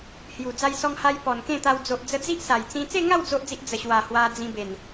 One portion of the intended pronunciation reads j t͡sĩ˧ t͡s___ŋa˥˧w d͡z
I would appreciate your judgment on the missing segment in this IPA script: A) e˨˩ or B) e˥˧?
B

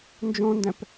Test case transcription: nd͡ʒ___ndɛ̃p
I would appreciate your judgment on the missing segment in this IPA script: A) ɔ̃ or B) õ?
B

